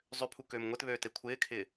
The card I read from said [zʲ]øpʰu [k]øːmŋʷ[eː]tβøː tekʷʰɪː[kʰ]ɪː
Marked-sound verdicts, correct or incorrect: incorrect: zˤ, correct, incorrect: e, correct

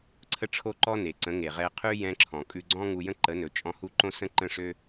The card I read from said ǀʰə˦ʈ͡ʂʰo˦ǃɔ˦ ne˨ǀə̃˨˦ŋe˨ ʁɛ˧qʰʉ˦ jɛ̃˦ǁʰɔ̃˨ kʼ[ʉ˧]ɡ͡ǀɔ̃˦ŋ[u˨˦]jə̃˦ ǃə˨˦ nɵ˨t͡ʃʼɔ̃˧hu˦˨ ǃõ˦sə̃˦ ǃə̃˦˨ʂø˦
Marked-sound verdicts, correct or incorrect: correct, incorrect: u˧

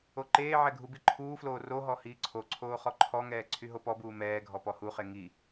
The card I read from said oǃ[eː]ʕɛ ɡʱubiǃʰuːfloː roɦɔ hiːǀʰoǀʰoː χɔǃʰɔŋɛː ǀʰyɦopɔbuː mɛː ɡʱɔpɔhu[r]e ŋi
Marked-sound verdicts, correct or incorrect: correct, incorrect: χ

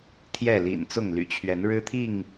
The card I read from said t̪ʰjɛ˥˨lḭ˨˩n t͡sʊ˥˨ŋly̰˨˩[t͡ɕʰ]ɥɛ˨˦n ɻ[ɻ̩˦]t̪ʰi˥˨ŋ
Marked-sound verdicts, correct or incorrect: correct, correct

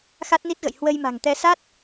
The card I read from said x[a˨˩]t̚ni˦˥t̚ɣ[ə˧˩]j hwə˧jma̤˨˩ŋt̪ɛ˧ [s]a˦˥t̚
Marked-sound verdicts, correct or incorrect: incorrect: a˦˥, incorrect: ə̰˧˨, correct

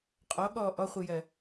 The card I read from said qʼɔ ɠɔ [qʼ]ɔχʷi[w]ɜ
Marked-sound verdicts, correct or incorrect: incorrect: ʔ, incorrect: j

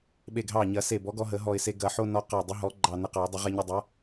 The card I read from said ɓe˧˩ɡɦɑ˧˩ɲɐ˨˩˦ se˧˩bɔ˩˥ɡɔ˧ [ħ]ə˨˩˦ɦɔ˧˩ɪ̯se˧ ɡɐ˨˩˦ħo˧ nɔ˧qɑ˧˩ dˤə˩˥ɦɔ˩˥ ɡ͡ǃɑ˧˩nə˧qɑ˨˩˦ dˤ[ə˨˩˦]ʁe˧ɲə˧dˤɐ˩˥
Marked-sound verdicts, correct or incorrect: incorrect: ɦ, correct

